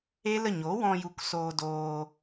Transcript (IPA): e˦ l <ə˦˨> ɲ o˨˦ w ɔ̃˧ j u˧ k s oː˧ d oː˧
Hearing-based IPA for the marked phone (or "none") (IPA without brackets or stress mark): ə˦˨